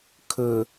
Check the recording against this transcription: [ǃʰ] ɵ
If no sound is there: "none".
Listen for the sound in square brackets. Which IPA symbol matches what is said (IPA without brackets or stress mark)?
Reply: kʰ